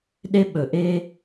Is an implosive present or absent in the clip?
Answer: present